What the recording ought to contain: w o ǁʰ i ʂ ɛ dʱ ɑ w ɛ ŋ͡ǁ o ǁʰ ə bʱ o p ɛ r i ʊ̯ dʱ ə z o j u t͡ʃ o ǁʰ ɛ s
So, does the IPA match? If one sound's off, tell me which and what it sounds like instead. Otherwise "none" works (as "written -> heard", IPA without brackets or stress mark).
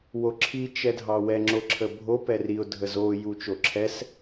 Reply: ʂ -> t͡ʃ